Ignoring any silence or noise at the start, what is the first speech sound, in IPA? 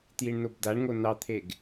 t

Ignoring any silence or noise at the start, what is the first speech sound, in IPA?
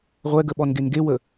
ʁʷ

